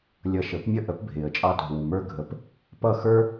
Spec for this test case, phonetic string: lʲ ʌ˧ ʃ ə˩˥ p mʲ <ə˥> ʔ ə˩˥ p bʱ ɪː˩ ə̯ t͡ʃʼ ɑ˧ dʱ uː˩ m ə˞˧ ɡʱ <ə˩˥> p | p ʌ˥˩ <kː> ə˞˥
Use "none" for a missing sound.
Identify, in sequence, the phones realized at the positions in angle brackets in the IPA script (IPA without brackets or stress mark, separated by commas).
ə˥, ə˩˥, x